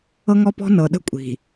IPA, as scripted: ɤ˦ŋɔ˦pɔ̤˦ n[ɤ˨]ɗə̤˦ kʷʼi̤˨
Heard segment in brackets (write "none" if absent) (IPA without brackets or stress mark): ɤ˨